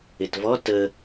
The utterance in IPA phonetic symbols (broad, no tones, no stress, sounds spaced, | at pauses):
ɪ t v ɔ t ə